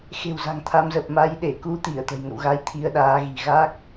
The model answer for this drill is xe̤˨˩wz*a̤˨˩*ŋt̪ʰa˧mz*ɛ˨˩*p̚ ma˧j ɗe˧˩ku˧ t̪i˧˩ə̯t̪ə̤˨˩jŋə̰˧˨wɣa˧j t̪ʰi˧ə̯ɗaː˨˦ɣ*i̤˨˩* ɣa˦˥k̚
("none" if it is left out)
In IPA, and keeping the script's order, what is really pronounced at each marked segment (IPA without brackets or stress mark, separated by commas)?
a̤˨˩, ə˨˩, i̤˨˩